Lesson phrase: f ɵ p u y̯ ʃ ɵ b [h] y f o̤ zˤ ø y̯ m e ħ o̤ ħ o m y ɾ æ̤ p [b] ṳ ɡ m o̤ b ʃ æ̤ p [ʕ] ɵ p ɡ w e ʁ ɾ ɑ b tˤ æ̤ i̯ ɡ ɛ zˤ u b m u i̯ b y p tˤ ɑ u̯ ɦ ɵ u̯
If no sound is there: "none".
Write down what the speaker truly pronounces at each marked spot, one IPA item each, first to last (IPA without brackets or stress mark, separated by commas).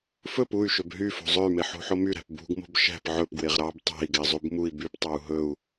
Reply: ɦ, b, ʕ